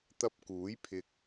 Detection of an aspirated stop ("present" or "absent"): present